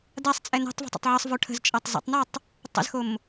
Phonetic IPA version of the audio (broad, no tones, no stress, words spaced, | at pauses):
dasˤt͡sʼɛ nɛ̤tˤvə̤ tˤə̰tˤʕʌsˤvo ʈʰə̤zt͡ʃʼʌtˤ zə̰tˤnatˤ | tˤə̰zxom